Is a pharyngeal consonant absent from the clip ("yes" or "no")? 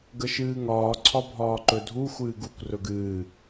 yes